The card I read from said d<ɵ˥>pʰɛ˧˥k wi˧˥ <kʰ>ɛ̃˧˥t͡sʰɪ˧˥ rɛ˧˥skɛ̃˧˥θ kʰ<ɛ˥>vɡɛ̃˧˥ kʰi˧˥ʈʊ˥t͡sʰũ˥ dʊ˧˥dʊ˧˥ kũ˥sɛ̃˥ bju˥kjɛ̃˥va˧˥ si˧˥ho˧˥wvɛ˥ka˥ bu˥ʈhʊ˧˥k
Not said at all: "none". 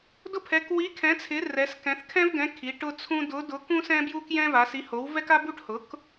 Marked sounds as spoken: ʊ˥, kʰ, ɛ̃˥

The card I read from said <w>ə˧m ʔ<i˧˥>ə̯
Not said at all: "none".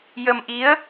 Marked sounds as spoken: j, i˧˥

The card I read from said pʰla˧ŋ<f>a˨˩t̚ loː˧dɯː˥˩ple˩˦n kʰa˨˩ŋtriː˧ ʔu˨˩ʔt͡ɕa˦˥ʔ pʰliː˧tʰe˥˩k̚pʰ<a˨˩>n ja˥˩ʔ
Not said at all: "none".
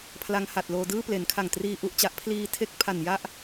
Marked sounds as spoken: h, a˨˩

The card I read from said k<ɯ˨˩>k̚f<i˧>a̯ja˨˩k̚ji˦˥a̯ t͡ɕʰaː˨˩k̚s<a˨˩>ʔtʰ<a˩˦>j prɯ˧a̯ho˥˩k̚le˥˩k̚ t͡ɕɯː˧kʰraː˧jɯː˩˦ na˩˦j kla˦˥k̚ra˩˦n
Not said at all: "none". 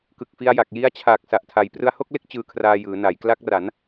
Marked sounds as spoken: ɯ˨˩, i˧, a˨˩, a˩˦

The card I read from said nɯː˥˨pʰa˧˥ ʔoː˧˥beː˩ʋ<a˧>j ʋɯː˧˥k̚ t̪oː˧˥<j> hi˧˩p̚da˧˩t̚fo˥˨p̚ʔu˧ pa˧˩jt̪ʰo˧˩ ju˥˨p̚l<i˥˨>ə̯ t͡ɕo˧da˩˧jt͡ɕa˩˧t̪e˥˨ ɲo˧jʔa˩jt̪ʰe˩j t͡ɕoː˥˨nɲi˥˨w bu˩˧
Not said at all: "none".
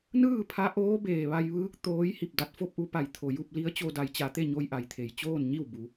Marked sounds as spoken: a˧, j, i˧˥

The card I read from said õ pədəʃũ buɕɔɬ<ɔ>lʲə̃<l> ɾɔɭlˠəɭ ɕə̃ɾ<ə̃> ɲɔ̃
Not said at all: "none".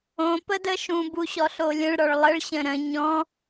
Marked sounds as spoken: o, ɭ, ə̃

